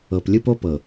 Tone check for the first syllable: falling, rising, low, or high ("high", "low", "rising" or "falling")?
low